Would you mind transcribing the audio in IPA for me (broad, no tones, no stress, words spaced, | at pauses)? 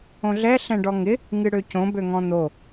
õɮɛ ɬɛ̃ɖɔŋɪ | ŋɨɽøcõ bøŋɔ̃n̪o